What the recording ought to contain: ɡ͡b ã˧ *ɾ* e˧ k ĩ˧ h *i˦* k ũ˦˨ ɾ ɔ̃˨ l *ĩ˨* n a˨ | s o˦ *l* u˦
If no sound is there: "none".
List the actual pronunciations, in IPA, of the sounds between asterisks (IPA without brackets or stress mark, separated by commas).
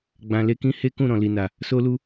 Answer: l, e˦, i˨, l